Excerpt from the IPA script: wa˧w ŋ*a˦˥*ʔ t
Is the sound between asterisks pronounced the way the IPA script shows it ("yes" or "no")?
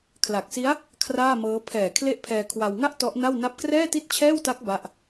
no